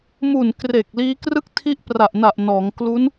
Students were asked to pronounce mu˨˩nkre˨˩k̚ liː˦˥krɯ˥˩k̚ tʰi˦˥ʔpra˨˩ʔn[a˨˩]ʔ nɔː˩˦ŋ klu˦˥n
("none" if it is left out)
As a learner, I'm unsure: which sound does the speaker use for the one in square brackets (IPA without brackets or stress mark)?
a˨˩